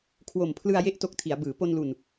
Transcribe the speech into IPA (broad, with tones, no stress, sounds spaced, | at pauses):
kʰ w o˨˩ m pʰ l ɯ˧ a̯ j e˦˥ ʔ t o˦˥ k̚ tʰ i˩˦ a̯ b ɯː˩˦ p o˧ n l u˨˩ n